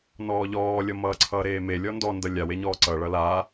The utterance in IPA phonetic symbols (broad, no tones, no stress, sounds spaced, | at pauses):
n ɔː ʎ ɔː lʲ ʌ m ʌː ǀʰ ʌː ɾ eː m e lʲ ɔ n d ɔ n d ʌ lʲ a w e ɲ ɔː ǀ ʌ ɭ ʌ l aː